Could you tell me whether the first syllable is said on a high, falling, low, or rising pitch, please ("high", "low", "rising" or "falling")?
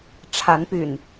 rising